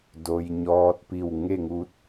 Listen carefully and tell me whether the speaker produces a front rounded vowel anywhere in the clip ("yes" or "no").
no